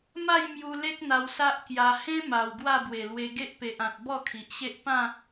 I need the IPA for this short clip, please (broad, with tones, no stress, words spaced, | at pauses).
ma˥˧j mju˧le˦k̚n̪a˧w sa˦ʔkja˧ hẽ˦ ma˨˩w ɡwa˥˧bwe˨˩lwe˧ ɡe˦ʔpe˨ʔã˨t̚ bɔ˥˧kʰi˨ʔɕe˦ʔ pã˥˧